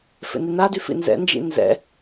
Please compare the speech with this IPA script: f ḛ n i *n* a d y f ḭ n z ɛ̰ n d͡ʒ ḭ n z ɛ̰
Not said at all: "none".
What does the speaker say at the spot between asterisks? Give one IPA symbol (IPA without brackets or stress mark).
n